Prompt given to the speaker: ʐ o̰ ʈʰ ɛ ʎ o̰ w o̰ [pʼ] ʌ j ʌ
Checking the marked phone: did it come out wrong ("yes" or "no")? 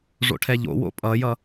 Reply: no